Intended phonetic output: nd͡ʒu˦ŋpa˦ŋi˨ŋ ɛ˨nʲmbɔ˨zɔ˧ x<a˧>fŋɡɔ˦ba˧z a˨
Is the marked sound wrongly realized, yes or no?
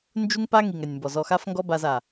yes